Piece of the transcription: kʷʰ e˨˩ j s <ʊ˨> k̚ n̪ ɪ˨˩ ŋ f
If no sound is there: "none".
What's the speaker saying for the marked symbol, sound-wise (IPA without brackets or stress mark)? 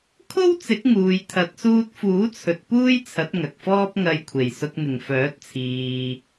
ʊ˨